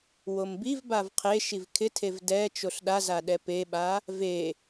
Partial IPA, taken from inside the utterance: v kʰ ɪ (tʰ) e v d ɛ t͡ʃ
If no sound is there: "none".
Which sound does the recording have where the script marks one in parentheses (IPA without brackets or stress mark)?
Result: tʰ